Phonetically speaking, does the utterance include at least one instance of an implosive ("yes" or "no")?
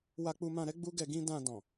no